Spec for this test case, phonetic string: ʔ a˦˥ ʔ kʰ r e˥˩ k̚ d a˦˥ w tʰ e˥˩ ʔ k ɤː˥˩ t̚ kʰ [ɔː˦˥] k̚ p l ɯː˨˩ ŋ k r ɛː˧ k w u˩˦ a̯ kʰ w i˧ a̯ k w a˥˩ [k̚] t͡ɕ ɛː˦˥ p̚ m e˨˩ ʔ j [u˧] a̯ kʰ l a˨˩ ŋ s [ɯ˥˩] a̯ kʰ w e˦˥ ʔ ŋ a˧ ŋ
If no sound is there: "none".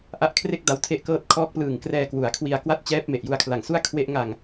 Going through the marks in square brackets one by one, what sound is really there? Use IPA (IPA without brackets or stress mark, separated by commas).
ɔː˦˥, t̚, u˧, u˥˩